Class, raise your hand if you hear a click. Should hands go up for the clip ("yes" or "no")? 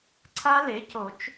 yes